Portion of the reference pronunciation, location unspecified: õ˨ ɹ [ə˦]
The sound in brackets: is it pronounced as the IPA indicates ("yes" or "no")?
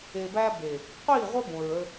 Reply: yes